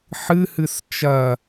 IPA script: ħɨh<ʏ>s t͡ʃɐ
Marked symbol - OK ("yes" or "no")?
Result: no